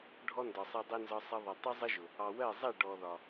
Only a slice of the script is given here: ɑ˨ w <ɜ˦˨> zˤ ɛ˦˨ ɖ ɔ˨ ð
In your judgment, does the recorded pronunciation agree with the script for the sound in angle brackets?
yes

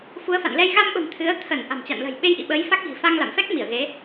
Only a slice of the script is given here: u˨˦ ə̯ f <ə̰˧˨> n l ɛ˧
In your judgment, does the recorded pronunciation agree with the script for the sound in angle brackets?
no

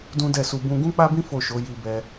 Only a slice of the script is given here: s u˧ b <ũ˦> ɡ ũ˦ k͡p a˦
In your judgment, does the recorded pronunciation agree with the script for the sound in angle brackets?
no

